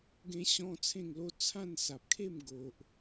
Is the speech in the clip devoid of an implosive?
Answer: yes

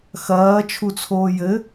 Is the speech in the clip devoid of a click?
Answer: yes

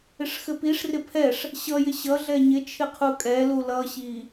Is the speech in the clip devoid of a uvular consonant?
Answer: no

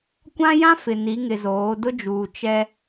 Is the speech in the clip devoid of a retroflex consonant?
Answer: yes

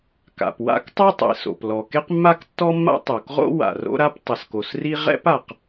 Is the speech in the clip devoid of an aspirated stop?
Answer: yes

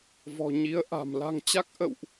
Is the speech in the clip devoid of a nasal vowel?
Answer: yes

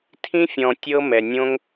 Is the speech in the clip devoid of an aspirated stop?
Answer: no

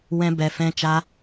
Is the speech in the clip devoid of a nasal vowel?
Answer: no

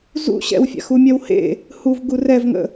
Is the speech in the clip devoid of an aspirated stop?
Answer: yes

